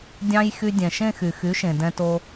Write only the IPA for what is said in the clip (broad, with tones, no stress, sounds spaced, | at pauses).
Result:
dʲ ɑ̃˧ j x y˧ dʲ ɛ̃˩ ʃ ẽ˥˧ x y˩ x y˩˥ ʃ ẽ˩ d ɛ̃˧ t o˧